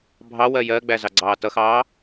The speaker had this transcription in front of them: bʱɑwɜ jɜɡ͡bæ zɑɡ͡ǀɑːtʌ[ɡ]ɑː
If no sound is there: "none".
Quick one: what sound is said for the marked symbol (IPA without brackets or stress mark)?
x